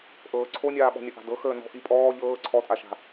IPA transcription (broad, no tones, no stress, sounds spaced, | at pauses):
ʔ ɤː ǀʰ o nʲ aː ɓ ɔ̤ nʲ ɐ ʔ a̤ d ɤ x əː n ɔ̤ ʔ i pʼ ɔː ʎ ɤː ǀʰ ɔ tʼ a ʃ a̤